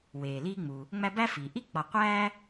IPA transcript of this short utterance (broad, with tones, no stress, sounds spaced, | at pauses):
w eː˩ l iː˦ ŋ͡m u˩ | ŋ͡m æ˦ b æ˥ f iː˩ ʔ i˥ k͡p ɒ˨ qʷ æː˥